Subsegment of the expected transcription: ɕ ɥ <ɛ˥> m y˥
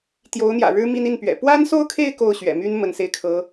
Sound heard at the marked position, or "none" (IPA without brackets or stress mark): ɛ̰˨˩